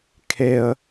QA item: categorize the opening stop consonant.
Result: aspirated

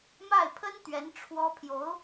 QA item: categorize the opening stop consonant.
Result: aspirated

